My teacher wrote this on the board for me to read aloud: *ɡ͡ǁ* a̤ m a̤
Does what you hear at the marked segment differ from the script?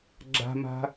no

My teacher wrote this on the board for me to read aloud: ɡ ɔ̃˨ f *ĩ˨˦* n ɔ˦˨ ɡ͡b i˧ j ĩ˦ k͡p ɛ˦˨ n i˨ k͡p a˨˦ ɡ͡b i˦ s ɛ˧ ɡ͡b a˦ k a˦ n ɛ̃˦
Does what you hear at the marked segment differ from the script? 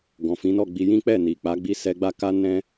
no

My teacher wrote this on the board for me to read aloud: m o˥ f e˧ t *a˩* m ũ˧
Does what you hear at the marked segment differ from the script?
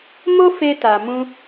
no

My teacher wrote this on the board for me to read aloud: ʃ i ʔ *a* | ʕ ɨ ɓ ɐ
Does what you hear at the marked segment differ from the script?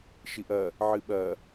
yes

